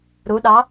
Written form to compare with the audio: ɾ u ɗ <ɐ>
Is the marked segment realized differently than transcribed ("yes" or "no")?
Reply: yes